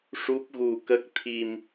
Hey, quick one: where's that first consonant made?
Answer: retroflex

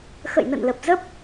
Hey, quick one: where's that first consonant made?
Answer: velum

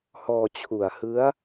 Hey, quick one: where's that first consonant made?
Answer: throat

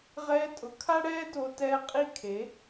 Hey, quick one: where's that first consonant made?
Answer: uvula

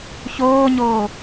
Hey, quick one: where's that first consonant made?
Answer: palate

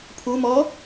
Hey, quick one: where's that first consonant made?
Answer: lips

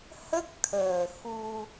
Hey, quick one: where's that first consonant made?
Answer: throat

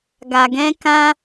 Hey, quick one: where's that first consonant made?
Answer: velum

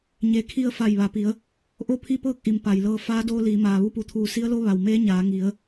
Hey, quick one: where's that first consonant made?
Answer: palate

